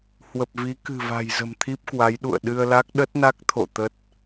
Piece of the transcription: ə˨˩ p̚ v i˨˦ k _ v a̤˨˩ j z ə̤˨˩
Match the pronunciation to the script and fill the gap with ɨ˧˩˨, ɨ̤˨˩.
ɨ̤˨˩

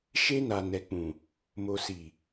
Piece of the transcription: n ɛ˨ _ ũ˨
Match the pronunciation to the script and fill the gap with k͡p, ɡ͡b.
k͡p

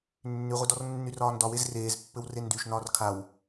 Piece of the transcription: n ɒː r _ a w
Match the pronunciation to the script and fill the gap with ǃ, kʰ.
kʰ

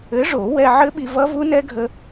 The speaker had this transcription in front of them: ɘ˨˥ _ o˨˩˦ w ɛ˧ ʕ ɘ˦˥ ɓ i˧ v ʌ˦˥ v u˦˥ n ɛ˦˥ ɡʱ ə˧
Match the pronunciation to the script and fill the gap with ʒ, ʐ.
ʐ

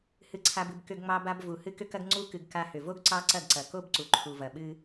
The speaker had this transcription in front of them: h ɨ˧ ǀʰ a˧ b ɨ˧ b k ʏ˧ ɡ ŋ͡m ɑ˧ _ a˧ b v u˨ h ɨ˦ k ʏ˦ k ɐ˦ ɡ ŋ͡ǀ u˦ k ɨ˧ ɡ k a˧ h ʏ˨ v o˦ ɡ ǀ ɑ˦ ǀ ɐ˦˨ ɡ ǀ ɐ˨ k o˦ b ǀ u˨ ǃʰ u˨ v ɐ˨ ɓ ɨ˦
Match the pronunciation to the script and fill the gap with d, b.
b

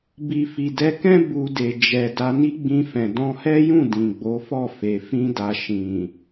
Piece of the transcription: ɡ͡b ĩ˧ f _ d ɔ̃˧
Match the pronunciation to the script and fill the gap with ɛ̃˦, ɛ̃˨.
ɛ̃˨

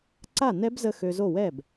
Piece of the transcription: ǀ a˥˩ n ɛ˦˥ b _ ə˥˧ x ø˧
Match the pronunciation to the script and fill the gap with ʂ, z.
z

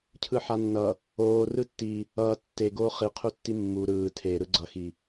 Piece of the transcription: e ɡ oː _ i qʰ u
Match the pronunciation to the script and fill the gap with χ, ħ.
χ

